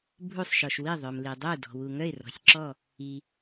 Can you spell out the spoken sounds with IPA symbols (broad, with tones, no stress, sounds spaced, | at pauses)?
bʱ u˧˩ sˤ ʃ ɔ˩ ʃ w i˧˩ ðˤ œ˩ m l i˩ dˤ u˧˩ d ɔ̤˩ w u˩ ŋ œ˧˩ ɪ̯ r ɔ̤˩ sʲ ǁ ɔ˧˩ | i˩